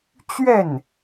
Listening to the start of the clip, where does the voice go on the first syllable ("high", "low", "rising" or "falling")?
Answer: falling